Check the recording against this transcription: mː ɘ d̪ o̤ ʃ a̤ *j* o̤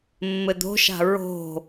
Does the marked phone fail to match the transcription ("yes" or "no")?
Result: yes